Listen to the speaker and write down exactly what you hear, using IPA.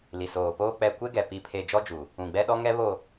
l i˨ s oː˨ p oː˦ k͡p ɛ˨ kʷ e˦ ɡ ɛ˨ p i˨ pʰ e˨ d͡ʒ ɔ˦ d͡ʒ u˨ | ũ˨ ɡ͡b ɛ˦ ɗ ɔ˦ ŋ ɛ˦ β o˨

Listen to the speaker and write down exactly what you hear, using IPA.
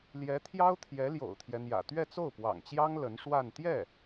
l j ɛ˧˥ t̪ʰ j ɑ˥ ʊ̯ t̪ʰ j ɛ˧˥ l j o̰˨˩ ʊ̯ t̪ʰ j ɛ˦ n̪ j ä̰˨˩ t̪ ɥ ɛ˥˧ t͡s o˥˩ ʊ̯ p w ɑ̰˨˩ ŋ t͡ɕ j ɑ˥ ŋ l ə˧˥ n ʂ w a˥˧ n t̪ j ɛ˥˩

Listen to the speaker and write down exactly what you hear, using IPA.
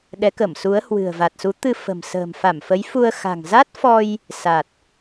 ɗ ɛ˨˦ k ə˧˩ m s u˨˦ ə̯ h w ɨ̤˨˩ ə̯ v a˨˩ t̚ s u˨˦ t̪ ɨ˧ f ə̤˨˩ m s ə̤ː˨˩ m f a˧˩ m f ə˨˦ j f u˧ ə̯ x a̤˨˩ ŋ z a˦˥ t̚ f ɔ˧ j | s a˨˩ t̚

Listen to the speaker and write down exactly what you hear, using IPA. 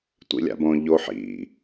tʷ ḭ lʲ a̰ b õ ʎ o ħ ḭ

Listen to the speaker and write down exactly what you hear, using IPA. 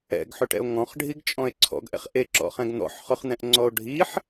ɛ̰ ɡ ħ ʏ ʈ ɛ̰ o̯ ŋ ɔ̃ χ ɖʱ i ɡ t͡ʃʼ ɔ̃ e̯ ǀʰ ɔ̰ ɡ ʔ ɛ̰ χ ʔ e ǁ ɔ̰ χ ɛ̃ ɡ n̪ ɔ̰ ħ χ ʊ χ n̪ ɛ̃ ʔ ŋ͡ǀ ɔ o̯ ɖʱ i ħ

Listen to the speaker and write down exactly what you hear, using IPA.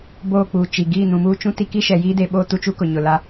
b oː˦˨ k͡p uː˨ t͡ʃ i˨ ɡ iː˦˨ n ũ˨ m uː˦ t͡ʃ ũ˦ t i˦ k i˦ ʃ ɛ˨ j iː˦ d e˨ ɓ oː˦ t u˦ t͡ʃ u˦ k ʊ˨ ɲ ʊ˨ l a˦

